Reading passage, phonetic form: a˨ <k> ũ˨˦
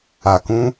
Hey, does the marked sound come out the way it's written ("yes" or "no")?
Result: yes